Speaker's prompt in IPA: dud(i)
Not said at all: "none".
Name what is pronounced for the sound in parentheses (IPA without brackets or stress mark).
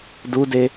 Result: e